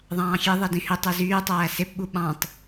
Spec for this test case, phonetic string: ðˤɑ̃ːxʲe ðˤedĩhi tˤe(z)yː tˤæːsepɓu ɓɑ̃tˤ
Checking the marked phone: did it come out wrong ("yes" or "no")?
no